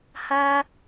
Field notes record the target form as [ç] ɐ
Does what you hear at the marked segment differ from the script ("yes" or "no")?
yes